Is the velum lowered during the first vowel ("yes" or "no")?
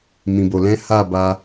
yes